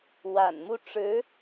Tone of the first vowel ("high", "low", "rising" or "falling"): low